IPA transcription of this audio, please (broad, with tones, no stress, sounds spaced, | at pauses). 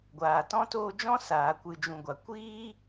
ɡʷ aː˨ t ɔ̃˦ t oː˧ d͡ʒ ɔ̃˦ s aː˨ kʷ ɨ˨ d͡ʒ ũ˨ ɡʷ a˨ kʷ iː˦